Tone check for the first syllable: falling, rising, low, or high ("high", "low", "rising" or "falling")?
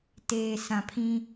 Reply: low